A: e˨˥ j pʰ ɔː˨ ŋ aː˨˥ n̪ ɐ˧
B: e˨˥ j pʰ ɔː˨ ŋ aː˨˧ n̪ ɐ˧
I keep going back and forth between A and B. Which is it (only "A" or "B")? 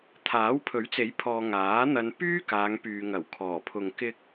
A